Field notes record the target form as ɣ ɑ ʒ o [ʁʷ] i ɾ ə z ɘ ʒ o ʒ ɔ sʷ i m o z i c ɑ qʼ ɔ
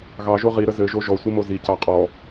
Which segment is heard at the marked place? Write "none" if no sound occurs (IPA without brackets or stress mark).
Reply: ʁ